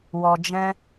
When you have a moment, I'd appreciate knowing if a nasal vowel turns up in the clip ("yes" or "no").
yes